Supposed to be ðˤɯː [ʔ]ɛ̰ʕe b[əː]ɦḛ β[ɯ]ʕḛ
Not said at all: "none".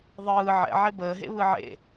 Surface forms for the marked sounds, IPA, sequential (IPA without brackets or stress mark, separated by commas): ʕ, əː, ɯ